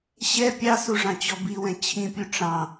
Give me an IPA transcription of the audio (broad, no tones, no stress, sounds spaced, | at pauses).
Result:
ɕ ɛ pʲ ɑ s u ʐ ɑ̃ t͡ɕ ɔ b i w ɛ̃ t͡ɕʰ ĩ pʲ u ʈ͡ʂ ɑ̃